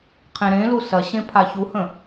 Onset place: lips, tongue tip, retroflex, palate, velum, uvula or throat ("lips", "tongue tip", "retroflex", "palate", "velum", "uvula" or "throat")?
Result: uvula